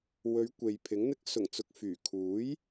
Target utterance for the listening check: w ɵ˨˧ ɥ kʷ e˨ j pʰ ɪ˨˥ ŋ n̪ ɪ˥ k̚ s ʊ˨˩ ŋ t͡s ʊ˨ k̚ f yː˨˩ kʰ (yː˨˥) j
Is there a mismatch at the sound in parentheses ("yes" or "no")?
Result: yes